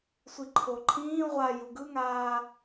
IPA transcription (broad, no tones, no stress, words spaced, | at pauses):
sʷiǃʰoǃʰĩː ʁʷa juɡɯŋaː